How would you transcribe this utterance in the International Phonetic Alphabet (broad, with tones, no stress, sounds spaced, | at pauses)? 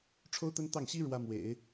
ʈ͡ʂʰ o˥ ʊ̯ t̪ ə˥ n t̪ ɑ˥˩ ŋ ɕ i˥ ɻ w ä˥ m w ḛ˨˩˦ ɪ̯